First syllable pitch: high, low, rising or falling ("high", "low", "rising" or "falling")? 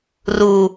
low